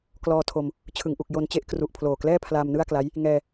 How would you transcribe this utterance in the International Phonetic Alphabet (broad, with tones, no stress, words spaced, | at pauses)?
klɔː˧tʰo˧m | t͡ɕʰɯ˩˦ŋʔu˨˩k̚ jo˧nt͡ɕe˦˥ʔ kru˨˩ʔpʰloː˨˩klɛː˥˩ pʰlaː˧mnɯ˥˩a̯kla˦˥j | ŋɛː˧